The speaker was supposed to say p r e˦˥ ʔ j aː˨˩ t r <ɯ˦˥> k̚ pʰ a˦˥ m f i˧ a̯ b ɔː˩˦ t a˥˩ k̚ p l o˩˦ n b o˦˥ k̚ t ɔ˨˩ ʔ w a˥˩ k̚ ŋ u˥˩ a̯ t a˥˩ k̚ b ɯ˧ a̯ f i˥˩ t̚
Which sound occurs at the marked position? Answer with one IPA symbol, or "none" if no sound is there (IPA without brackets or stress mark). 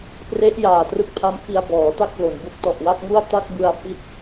ɯ˦˥